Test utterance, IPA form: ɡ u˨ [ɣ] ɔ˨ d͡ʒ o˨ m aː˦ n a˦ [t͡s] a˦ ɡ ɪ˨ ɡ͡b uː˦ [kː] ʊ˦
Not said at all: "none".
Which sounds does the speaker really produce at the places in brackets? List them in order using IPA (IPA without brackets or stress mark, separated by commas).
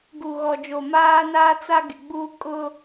ɣ, t͡s, kʼ